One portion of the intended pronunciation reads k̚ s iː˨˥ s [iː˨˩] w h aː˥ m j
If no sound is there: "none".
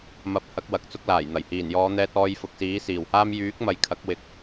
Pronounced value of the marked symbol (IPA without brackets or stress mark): iː˨˩